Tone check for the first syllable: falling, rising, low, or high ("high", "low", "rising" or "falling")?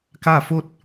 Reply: falling